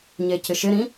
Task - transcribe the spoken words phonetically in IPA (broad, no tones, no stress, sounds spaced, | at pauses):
ɲ e c ɪ ʃ ɪ ɾ ĩ